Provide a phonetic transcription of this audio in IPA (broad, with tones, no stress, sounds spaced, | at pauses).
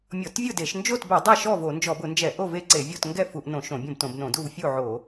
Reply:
mʲ ɔ˧˩˧ t vʲ ʊ˥˨ d e˧˩˧ ʃ n d͡ʒ o˥˨ t b ɛ˧˩˧ dˤ ɛ˥˨ ʃ ɔ˥˨ v o˧˩˧ n d͡ʒ ɔ˧˩˧ b ʊ˧˩˧ n d͡ʒ ɛ˧˩˧ ʔ o˥˨ v e˥˨ ǀ e˧˩˧ vʲ o˥˨ t ŋ ɡ ɛ˥˨ f u˧˩˧ ʔ n õ˧˩˧ ʃ õ˧˩˧ bʲ õ˥˨ b t õ˧˩˧ b n õ˧˩˧ d u˥˨ v fʲ u˥˨ ʕ o˧˩˧